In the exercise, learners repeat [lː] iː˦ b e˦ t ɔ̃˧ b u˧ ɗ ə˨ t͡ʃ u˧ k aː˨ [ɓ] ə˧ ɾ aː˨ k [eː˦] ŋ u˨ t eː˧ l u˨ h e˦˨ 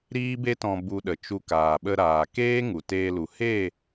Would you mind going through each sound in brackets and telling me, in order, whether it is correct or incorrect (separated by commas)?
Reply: incorrect, correct, correct